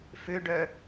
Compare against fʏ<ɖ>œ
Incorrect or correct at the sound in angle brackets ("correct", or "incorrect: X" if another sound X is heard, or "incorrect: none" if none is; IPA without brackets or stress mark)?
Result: correct